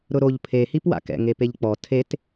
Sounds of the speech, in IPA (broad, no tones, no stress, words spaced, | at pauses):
ɾʊɾoʎ pʰe hipwa̰kɛ̰ ŋepeʎk͡pɔ tʰet